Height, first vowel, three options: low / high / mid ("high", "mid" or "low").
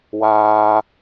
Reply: low